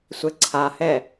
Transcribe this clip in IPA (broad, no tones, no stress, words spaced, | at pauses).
sʷɛǀʰahɛ